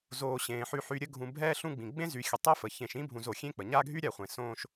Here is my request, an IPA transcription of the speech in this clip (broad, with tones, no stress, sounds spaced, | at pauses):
z oː˩ ɕ ẽː˩ ħ y˨ ħ y˨ ɾʲ ə˦ ɡʱ ũ˨ bʱ ɛː˦ ɬ ũ˦ ɡ͡b ĩ˩ ɡ͡b ẽ˥ z y˨ xʲ ə˨ tˤ e˦ f ə˩ ç ẽ˨ ʃ ĩ˥ bʱ ũ˨ z o˩ xʲ ẽ˥ k͡p ə˩ ɲ a˦ ɡʱ y˥ ɾʲ a˨ χʷ ẽ˩ s õː˦ ʃ